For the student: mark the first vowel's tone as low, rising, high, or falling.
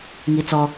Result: high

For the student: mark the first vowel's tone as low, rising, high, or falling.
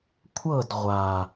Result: falling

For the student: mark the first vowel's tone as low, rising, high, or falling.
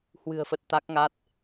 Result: low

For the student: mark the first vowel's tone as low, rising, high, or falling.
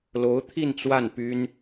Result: rising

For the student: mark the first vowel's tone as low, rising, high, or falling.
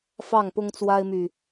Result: falling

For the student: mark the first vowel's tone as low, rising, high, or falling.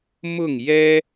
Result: falling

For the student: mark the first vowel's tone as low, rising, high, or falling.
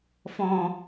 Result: low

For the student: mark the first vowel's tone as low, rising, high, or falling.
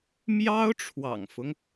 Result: high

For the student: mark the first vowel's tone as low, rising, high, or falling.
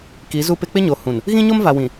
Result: rising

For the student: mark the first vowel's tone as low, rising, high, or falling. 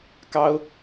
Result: high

